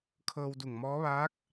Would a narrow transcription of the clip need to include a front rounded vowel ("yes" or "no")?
no